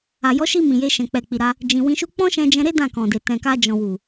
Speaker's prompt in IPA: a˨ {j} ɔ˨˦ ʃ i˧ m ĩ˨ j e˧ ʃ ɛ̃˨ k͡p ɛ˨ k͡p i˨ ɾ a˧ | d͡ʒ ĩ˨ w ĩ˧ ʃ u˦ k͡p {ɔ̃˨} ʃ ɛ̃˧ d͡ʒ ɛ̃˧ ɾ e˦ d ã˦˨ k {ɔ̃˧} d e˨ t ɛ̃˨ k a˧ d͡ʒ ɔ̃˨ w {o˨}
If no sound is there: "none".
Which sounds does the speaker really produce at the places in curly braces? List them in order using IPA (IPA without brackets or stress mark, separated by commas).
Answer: j, ɔ̃˦, ɔ̃˨, u˨